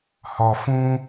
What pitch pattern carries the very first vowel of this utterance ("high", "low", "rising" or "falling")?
low